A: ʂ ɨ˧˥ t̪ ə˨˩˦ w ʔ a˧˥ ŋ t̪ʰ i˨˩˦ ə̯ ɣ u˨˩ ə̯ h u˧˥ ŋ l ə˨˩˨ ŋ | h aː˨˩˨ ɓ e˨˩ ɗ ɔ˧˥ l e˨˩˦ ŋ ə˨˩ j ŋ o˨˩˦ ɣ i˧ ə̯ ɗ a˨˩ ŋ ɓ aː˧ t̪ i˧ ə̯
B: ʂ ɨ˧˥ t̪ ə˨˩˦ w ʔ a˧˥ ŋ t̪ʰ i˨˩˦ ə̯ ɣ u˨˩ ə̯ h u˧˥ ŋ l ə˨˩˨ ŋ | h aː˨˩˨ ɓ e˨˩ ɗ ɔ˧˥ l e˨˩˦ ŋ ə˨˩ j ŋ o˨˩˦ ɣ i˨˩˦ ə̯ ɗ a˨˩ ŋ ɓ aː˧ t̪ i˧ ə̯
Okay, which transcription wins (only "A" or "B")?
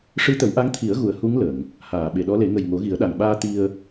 B